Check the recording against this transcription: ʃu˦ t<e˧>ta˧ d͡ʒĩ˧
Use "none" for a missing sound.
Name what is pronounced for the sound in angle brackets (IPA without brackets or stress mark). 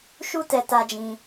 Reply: ɛ˧